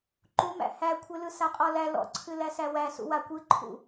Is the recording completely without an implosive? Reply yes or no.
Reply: yes